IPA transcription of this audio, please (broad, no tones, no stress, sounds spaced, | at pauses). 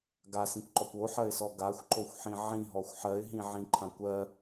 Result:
ɡ a s ĩ kʷ ǃ ɔ kʷ o ħ ɜ ɪ̯ s ɔ ɡ a xʷ ǃ o xʷ ħ ĩ ʕ ĩ ɦ ɔ xʷ ħ ɜ ɪ̯ ɦ ĩ ʕ ĩ ǃʰ ã kʷ ɜ